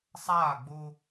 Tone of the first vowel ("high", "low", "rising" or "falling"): falling